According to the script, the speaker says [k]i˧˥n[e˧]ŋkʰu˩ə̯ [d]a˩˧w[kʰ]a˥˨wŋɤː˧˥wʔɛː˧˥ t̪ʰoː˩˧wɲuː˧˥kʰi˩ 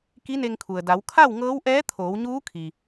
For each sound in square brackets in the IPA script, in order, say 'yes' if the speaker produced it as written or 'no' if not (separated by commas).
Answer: yes, yes, yes, yes